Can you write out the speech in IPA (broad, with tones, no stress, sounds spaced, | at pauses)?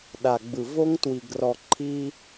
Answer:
ɗ a˨ ɡ͡b ɯ˨ v o˦ ŋ t w i˨ ɡ r ɔ˨ ǃʰ i˦